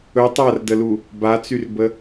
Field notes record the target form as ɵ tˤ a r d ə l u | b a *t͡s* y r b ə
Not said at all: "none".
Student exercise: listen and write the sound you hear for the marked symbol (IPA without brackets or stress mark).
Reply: t͡s